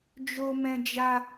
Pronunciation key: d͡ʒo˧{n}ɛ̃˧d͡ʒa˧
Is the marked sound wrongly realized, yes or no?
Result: yes